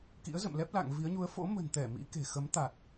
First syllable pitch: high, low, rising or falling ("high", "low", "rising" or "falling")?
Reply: rising